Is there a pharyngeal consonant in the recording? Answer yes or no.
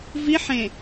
yes